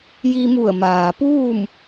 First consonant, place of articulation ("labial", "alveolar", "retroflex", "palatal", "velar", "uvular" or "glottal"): palatal